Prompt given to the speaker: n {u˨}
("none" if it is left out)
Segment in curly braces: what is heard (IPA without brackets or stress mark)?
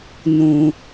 ũ˨